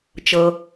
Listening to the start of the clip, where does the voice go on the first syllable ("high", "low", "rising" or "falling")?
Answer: low